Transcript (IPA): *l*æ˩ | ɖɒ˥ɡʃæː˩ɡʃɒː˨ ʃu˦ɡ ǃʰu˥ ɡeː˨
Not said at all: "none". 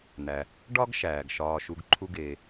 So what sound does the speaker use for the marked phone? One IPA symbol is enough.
n̪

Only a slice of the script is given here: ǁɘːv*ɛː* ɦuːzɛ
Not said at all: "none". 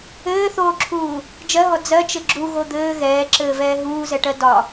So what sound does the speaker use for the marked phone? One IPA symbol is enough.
ɛː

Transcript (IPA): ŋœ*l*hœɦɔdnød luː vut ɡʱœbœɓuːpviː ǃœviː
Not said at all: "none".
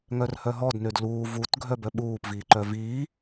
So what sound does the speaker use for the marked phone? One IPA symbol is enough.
r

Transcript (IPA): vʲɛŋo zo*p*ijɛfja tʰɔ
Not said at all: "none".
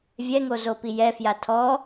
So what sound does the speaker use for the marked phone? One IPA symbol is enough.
p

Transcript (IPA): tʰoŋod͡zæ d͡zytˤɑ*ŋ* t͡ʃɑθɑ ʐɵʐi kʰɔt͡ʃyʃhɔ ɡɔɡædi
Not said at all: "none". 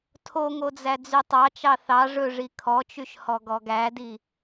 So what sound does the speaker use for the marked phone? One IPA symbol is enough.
none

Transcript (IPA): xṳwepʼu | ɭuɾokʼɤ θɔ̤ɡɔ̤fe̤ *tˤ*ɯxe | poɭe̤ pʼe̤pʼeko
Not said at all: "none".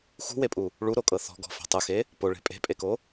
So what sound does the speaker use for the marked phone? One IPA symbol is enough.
tˤ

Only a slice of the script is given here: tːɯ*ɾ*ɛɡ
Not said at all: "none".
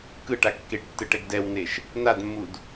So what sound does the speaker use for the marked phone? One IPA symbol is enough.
ʈ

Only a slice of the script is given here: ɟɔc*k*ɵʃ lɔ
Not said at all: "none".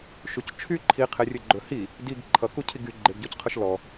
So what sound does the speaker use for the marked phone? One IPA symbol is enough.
qʰ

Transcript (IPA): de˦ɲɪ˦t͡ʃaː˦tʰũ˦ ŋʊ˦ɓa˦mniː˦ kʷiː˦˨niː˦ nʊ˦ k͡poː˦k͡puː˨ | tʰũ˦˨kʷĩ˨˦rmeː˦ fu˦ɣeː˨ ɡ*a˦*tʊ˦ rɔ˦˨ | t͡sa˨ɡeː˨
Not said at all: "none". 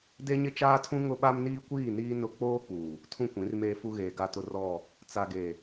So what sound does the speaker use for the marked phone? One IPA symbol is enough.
a˦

